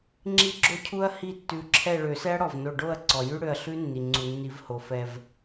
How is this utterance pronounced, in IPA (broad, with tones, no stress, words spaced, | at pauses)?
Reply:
ŋ͡ǁi˦˥ɡ͡ǁo˦˥cʰu˦˥ɐ̯ hi˥˨tːʉ˧˩ǁʰɛ˥˨ ɭø˨˩˦sɛ˦˥ɐ̯ɽɔ˩vno˧˩ ɖo˥˨ɐ̯ǀɔ˩ jʉ˦˥ɽø˧˩ɐ̯ɬʉ˦˥nːi˩ ŋ͡ǀu˩nːi˨˩˦v ho˩fɛ˧˩v